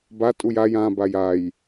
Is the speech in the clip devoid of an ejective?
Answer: no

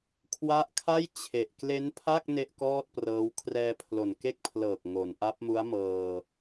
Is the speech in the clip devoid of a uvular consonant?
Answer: yes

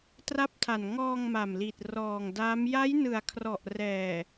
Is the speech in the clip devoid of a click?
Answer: yes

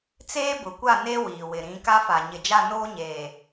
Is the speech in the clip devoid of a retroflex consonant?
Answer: yes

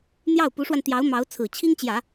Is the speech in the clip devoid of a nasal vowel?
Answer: yes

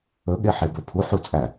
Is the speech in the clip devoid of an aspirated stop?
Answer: no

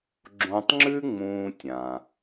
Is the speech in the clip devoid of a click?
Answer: no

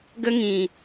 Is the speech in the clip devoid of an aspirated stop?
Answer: yes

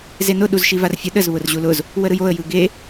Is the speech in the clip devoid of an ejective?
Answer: yes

